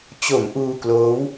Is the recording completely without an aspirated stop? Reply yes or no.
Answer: yes